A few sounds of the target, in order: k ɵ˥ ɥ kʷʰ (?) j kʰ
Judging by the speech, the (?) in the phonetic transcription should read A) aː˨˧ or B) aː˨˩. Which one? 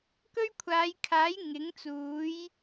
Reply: A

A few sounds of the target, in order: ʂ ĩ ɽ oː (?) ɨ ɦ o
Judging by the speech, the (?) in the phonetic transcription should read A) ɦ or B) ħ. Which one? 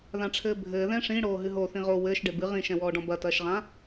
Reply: A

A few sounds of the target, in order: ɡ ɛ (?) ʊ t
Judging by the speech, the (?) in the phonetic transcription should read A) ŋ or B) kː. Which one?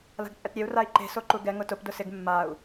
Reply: A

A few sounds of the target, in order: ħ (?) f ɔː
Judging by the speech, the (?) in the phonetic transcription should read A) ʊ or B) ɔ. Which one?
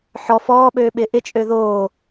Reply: B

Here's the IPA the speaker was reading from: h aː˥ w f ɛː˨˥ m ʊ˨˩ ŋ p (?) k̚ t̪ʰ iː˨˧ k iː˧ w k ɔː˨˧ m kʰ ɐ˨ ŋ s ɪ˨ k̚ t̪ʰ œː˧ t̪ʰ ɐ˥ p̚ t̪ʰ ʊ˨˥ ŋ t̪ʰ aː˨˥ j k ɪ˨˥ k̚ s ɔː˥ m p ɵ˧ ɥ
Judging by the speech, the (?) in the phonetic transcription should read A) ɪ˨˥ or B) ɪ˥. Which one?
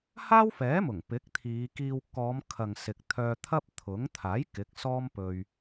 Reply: A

